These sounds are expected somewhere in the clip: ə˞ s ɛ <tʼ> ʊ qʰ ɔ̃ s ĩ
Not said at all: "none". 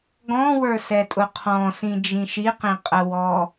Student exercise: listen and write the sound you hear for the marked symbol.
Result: tʼ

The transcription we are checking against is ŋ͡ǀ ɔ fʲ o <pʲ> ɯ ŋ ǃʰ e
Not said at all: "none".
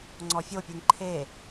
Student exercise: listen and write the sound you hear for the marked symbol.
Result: pʲ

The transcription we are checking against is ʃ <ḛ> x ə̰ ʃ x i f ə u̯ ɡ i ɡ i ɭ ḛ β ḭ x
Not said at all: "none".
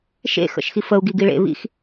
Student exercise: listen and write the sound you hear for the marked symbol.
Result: ḛ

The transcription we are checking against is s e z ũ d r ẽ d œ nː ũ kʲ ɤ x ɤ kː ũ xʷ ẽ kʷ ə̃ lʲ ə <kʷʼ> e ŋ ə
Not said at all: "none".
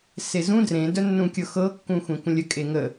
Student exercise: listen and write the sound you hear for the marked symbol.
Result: kʼ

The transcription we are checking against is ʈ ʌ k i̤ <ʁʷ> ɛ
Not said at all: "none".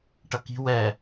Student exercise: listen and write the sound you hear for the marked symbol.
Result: w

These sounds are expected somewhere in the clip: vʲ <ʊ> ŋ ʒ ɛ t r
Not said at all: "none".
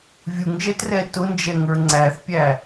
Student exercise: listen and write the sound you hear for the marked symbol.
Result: u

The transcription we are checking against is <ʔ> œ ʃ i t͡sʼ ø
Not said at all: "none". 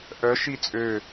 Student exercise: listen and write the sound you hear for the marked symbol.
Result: ʔ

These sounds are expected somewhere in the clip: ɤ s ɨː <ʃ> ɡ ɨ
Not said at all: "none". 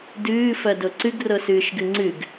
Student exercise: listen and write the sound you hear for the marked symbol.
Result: ʃ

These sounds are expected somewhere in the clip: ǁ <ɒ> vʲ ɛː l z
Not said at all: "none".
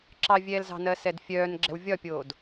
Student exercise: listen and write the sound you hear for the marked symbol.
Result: ɑ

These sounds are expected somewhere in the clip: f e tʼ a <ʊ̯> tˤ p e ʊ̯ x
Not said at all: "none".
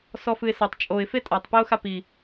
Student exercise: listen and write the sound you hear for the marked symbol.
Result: none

